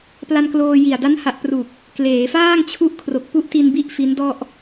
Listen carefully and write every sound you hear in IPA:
p l a˧ n k l oː˧ j i˨˩ a̯ d a˦˥ n h a˨˩ ʔ p r u˨˩ k̚ | k l eː˩˦ f aː˥˩ ŋ t͡ɕʰ u˦˥ ʔ kʰ r o˨˩ k̚ p u˥˩ ʔ t i˧ n b i˥˩ ʔ f i˦˥ n d ɔ˥˩ ʔ

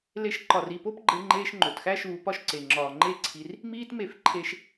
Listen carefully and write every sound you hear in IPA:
l e˧ ʃ ǃ ɒ˨ r i˦˨ p o˦ p ɡ͡ǃ e˧ ŋ͡ǃ eː˧ ʃ ŋ͡ǃ o˨ t x æ˦ ʃ uː˧ p ɒ˦ ʃ ǀ e˨ ŋ͡ǁ ɒː˨ ŋ͡ǃ e˦˨ ǀʰ i˧ r | m iː˦ t m e˦˨ f ǃʰ e˦ ʃ

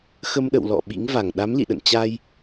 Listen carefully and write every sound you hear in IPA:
x ə˧ m ɗ ə̰˧˨ w l ɔ̰˧˨ ɓ ḭ˧˥ ŋ v a˧˩ ŋ ɗ a˨˦ m l ḭ˧˨ ɗ ə̰˧˨ n t͡ɕ a˧ j

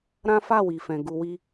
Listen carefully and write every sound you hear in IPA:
ɾ ã˦ f a˦˨ w i˨ f ɛ̃˨ ɡ u˧ w i˦

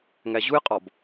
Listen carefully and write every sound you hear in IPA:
ŋ æ ʑ u j qʼ ɒ b

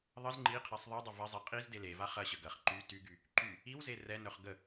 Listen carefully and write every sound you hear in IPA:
ðˤ ə z ŋ͡ǃ i qʰ ɛ sˤ ðˤ i dˤ ʊ v ɐ zˤ ɛ qʼ i z d e l e v a χ ɐ ɕ ə ɡ ɐ χ ǃ y t y ɡ y | ǃ y | i w z e r ɛ n œ χ ɡ ə

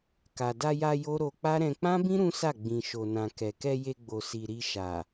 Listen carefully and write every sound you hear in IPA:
k a˨ d a˧ j a˧ j o˦ ɾ o˧ k͡p a˦ ɾ ɛ̃˧ k͡p ã˦ b ĩ˦ ɾ ũ˦ s a˦˨ ɡ͡b ĩ˨ ʃ o˨ n ã˨ k ɛ˨ k ɛ˧ j e˧ ɡ͡b o˨ s i˨ ɾ i˧ ʃ a˨

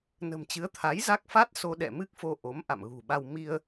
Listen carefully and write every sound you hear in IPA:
n ə̤˨˩ m t͡ɕ ɨ˨˦ ə̯ t̪ʰ a˨˦ j z a˦˥ k̚ f a˦˥ t̚ s o˧ ɗ ɛ̰˧˨ m ɨ˦˥ k̚ f o˧ ʔ o˨˦ m ʔ a̰˧˨ m ɣ ṳ˨˩ ɓ a˧ w m i˧ ə̯

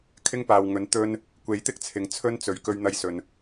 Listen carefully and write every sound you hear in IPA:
kʰ ɪ˥ ŋ p aː˨ w ŋ ɵ˨˥ n t̪ ɵ˧ n | kʷ e˨˥ j t̪ ɪ˥ k̚ t͡sʰ ɪ˨ ŋ t͡sʰ ɵ˥ n t͡s ɵ˨ ɥ k ɵ˧ ɥ n̪ ɐ˧ j s ɵ˨ n

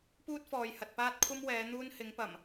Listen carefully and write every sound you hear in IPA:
p uː˥ t̚ f ɔː˨ j h ɐ˨ t̚ p aː˥ t̚ kʷʰ ɐ˥ m w ɛː˨˧ n̪ uː˥ n h ɪ˨˧ ŋ p ɐ˨˩ m

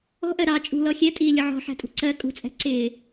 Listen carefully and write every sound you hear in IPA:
ɔ̤ ʔ ɜ ɾ ɑ t͡ʃʼ ṳ l ɔ xʲ ɛ tʼ iː lʲ ʊ ʕ ɔ̤ ħ æ̤ tʼ ṳ ǀ ɜ kʼ ṳ t͡sʼ ɛ̤ ǀ ɪː

